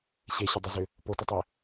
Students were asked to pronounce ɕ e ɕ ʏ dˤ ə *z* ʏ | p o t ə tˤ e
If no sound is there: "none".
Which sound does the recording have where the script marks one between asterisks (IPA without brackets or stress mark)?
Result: z